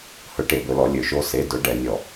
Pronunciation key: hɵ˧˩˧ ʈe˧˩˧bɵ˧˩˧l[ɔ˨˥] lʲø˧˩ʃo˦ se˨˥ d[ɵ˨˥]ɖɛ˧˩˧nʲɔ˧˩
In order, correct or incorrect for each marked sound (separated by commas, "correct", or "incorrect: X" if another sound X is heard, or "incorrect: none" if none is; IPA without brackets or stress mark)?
incorrect: ɔ˧˩˧, correct